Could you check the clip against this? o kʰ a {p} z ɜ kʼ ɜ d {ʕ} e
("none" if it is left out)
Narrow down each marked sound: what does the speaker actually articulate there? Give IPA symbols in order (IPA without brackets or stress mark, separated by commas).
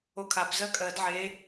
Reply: p, ʕ